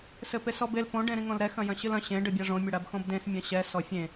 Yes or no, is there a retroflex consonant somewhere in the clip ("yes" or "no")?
yes